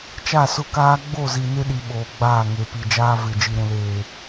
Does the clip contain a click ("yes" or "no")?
no